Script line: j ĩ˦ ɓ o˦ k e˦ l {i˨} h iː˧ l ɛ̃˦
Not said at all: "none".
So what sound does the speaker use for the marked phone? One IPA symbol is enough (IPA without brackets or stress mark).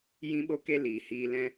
iː˨